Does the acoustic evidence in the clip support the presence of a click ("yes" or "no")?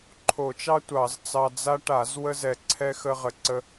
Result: yes